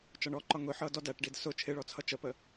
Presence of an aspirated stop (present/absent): present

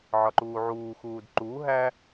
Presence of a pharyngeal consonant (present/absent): present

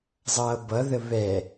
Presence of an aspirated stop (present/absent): absent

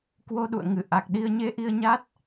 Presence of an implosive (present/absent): present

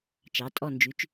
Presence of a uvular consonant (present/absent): absent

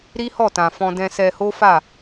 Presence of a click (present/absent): absent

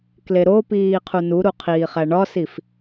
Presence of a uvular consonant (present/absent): present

